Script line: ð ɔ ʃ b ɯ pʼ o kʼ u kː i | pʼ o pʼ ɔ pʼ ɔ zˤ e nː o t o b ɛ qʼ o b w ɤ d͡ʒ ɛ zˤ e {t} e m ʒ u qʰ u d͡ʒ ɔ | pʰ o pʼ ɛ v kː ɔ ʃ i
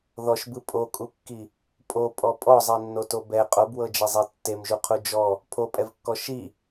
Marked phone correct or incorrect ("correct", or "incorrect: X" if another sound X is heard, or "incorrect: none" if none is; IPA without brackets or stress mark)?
incorrect: tː